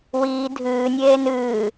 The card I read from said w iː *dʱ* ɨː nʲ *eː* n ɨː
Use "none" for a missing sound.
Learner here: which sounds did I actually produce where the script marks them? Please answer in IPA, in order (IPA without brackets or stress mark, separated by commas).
dʱ, eː